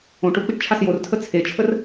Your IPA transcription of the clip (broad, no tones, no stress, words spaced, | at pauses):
õʈ ʊ k͡piʈt͡ʃʰasjortʰə t͡sʰet͡ʃʰər